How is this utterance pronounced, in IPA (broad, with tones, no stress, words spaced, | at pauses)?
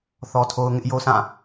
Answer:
θɔ˦tʰo˦ʊ̯ ŋɪ˦ʔjo˦sã˦˨